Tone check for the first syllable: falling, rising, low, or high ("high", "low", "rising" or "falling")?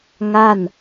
falling